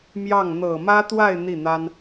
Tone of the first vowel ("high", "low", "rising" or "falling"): falling